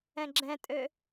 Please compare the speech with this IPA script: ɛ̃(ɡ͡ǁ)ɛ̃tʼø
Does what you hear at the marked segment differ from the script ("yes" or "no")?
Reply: no